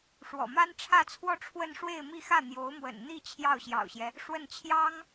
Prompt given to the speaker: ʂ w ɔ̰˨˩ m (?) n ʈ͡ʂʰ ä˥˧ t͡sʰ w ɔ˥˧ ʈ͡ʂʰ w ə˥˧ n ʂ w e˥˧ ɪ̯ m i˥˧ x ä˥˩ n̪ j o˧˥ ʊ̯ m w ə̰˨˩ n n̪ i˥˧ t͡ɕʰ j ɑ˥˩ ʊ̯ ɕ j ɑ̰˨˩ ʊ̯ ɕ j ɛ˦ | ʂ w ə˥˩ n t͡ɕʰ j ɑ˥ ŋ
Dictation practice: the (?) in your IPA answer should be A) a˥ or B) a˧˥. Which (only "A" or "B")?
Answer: A